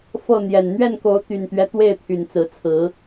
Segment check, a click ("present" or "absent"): absent